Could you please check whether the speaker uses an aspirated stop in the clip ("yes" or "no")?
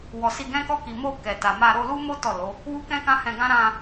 no